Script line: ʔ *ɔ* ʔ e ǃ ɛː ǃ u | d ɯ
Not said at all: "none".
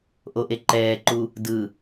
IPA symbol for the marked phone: o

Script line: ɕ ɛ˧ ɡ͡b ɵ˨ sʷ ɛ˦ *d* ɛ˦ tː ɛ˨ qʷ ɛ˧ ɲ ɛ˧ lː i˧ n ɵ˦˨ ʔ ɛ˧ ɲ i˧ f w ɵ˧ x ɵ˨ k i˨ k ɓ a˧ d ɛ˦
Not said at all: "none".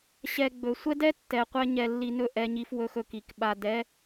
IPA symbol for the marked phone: d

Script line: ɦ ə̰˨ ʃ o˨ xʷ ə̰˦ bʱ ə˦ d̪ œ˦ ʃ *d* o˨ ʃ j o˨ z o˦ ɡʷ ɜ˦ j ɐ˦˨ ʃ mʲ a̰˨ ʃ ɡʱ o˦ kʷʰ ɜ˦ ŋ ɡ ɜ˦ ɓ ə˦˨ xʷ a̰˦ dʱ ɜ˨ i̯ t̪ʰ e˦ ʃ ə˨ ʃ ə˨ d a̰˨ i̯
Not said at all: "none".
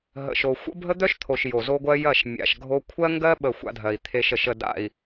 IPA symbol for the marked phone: t̪ʰ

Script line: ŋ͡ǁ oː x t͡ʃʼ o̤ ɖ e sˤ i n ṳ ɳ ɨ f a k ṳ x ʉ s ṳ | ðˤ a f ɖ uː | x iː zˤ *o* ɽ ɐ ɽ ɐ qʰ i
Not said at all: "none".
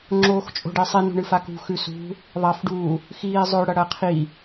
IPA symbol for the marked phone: ɵ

